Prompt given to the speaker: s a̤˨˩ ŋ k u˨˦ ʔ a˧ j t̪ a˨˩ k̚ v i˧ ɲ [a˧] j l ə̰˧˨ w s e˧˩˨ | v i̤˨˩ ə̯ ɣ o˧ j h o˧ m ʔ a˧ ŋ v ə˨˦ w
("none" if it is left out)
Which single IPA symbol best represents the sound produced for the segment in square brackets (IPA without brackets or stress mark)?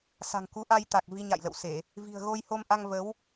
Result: a̰˧˨